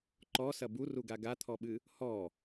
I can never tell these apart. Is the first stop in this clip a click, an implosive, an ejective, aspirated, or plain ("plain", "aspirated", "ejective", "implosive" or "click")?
click